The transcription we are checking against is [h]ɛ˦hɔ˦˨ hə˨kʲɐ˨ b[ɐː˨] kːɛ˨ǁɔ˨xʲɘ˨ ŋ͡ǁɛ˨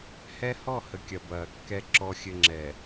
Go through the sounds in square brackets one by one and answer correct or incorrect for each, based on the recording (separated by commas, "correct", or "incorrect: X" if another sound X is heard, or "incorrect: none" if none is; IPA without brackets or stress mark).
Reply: correct, correct